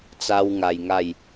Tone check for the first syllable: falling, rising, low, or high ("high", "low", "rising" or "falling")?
high